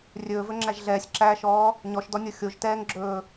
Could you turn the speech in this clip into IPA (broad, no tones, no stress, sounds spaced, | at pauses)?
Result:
rʲ ɵː v ɵ ŋ͡ǁ æ ʒ ɮ ɛː sʲ ǁ æː ʃ ɔː | ɲ ɔ ʃ d ɔ nʲ o xʲ o ʒ t ɛː ŋ ɡ͡ǁ ɵː